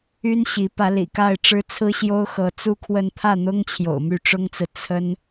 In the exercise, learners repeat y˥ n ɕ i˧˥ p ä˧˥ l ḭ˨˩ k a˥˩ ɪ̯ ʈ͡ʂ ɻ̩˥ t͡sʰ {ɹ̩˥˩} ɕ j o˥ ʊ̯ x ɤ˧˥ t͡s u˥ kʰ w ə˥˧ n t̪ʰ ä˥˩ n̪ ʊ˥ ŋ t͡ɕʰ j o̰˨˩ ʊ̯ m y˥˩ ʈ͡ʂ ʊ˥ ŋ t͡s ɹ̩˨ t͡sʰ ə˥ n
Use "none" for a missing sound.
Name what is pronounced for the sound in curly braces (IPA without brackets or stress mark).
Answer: ɹ̩˥